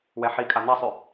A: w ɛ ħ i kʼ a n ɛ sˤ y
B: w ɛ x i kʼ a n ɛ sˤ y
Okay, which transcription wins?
A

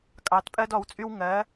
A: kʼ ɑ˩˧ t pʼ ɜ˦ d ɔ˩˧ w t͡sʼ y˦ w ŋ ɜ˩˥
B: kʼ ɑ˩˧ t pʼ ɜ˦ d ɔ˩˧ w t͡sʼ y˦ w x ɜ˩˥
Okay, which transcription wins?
A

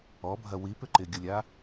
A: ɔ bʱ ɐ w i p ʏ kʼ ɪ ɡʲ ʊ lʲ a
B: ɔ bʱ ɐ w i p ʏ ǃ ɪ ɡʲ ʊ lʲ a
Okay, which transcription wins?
B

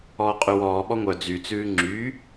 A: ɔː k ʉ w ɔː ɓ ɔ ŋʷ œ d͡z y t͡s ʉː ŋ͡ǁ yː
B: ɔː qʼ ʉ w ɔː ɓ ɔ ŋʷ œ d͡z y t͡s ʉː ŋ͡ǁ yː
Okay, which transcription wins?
B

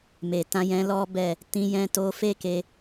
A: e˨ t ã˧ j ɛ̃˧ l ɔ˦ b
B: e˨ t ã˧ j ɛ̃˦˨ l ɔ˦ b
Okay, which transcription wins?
A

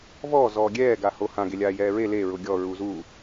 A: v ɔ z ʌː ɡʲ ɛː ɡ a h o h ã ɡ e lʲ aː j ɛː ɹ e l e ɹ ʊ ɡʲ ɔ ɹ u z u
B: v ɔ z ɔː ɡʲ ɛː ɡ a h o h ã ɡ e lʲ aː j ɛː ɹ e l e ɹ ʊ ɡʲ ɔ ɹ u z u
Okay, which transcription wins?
B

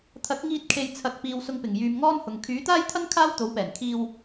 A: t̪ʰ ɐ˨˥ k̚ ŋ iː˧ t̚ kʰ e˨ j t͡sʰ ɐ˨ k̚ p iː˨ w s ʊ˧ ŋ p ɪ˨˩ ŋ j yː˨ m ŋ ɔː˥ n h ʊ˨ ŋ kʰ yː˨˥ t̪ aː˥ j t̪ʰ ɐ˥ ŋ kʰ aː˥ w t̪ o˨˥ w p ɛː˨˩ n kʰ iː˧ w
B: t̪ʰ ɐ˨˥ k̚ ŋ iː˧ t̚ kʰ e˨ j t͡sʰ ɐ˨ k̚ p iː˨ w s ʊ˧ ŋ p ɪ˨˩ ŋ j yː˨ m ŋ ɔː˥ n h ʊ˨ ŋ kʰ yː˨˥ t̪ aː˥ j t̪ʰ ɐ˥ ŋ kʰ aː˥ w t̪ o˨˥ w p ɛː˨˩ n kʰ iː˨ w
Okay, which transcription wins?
A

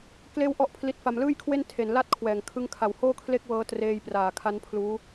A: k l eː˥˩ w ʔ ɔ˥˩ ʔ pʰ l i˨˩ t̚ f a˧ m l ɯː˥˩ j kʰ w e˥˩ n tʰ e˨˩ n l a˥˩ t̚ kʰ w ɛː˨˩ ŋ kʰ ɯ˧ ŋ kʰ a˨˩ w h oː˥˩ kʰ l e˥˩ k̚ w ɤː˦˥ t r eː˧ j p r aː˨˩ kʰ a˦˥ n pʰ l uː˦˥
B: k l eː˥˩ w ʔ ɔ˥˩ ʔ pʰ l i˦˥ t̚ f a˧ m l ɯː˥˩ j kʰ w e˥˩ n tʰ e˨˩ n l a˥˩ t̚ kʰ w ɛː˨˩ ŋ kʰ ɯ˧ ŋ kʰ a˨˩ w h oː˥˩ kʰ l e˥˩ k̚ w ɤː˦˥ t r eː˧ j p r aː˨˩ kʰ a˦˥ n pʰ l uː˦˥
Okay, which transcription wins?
B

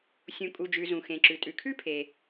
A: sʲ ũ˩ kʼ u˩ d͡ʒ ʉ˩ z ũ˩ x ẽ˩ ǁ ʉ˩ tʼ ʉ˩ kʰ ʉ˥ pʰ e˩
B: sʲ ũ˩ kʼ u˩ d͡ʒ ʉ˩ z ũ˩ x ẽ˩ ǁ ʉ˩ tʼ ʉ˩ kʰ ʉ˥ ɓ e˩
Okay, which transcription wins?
A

